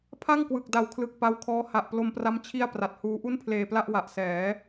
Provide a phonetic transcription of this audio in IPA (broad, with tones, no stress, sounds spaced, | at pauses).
pʰ a˥˩ ŋ k w ɯ˨˩ k̚ d a˨˩ w kʰ l ɯ˨˩ k̚ p a˦˥ w kʰ ɔː˦˥ h a˨˩ ʔ p l o˧ m p r a˦˥ m t͡ɕʰ i˥˩ a̯ p r a˨˩ t̚ h uː˦˥ ʔ u˥˩ n pʰ l eː˧ p l a˥˩ ʔ w a˨˩ ʔ s ɛː˩˦